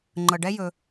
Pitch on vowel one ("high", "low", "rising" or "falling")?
low